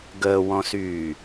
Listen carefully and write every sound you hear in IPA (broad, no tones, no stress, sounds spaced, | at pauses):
ɡ əː w ɔ̃ s yː